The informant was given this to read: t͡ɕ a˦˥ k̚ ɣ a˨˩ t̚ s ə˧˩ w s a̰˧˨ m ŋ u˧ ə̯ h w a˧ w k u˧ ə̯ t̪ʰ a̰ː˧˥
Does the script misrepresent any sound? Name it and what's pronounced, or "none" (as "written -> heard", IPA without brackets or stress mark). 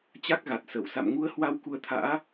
none